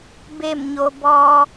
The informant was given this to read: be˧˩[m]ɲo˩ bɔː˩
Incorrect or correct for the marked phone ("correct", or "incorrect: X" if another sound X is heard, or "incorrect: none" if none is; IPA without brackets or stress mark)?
correct